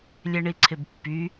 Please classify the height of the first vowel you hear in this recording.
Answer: mid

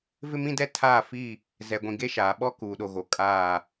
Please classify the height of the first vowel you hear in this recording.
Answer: high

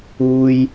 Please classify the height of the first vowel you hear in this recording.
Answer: high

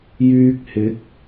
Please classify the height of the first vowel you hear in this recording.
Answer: high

